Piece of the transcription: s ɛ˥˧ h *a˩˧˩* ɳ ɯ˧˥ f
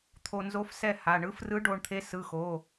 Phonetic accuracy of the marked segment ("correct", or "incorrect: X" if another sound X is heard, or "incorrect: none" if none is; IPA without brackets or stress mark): correct